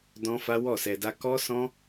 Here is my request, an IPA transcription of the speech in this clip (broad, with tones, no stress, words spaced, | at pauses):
dɔ̃˦fa˦ wɔ˦˨sɛ˧da˦ kɔ˦sɔ̃˦